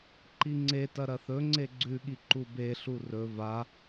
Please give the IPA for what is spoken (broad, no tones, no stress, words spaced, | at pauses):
ǃiŋ͡ǀetɐ ɾɐθɵŋ͡ǀe ɡ͡ǀʉɠi ǃubeɬu rɵ va